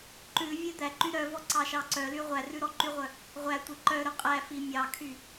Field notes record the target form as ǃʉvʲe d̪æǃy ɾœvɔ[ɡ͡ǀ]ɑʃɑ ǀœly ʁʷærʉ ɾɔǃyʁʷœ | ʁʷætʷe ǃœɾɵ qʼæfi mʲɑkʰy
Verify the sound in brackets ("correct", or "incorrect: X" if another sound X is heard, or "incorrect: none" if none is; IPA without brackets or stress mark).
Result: incorrect: ǀ